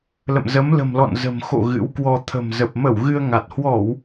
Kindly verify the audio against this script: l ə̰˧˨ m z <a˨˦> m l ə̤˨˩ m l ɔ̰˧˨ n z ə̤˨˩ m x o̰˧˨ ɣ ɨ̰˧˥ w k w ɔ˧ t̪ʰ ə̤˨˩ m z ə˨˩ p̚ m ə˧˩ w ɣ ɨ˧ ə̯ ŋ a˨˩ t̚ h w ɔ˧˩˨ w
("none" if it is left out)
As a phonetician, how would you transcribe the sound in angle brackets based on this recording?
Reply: ə˨˦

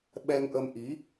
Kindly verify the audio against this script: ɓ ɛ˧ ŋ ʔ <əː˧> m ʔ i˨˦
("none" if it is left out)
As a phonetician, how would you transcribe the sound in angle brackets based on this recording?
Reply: ə˧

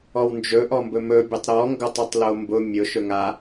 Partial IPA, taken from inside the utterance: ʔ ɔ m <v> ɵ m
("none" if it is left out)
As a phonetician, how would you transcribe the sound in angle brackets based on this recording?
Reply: b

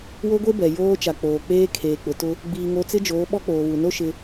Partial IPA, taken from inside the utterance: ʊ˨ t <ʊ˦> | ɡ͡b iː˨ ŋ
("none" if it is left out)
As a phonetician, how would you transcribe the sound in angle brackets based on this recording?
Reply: ʊ˦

